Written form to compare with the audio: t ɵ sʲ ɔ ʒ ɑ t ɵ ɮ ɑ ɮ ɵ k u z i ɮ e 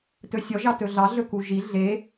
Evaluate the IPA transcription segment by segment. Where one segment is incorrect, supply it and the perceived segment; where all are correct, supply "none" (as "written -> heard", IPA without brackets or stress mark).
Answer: z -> ʒ